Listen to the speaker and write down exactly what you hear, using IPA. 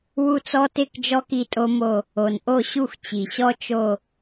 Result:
w u˥˧ t͡s ɔ˥ t ɪ˥˧ k d͡ʒ ɔ˥ k i˥˧ tʼ o˥ m o˥˧ | o˩ n ʔ o˥˩ ɕ u˥˩ xʷ t͡ɕ i˩ ɕ ɔ˥ t͡ʃ o˥˧

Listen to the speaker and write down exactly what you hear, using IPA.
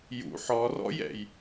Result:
j ṵ ħ ɔ r ɔ̰ j ɛ̰ j

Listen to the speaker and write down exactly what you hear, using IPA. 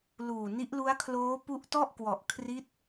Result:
l uː˨˩ n i˦˥ ʔ l u˦˥ a̯ kʰ l oː˦˥ p u˦˥ ʔ t ɔ˥˩ ʔ k w ɔ˨˩ ʔ kʰ r i˦˥ t̚

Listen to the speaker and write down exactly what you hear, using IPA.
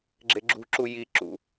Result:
ɡ͡ǁ e ɡ͡ǁ ṳ ǁ u j i ǁ ṵ

